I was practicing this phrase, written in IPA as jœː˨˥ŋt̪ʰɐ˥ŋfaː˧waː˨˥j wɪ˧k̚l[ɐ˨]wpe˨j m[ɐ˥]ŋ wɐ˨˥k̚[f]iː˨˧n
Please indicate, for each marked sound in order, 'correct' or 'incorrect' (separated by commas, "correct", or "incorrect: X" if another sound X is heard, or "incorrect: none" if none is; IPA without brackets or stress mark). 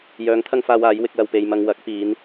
correct, incorrect: ɐ˧, incorrect: p